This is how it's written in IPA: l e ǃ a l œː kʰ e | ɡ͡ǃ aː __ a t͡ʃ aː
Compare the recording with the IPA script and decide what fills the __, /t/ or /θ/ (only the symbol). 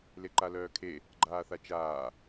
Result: θ